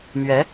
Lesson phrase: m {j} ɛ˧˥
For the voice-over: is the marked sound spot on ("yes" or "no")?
no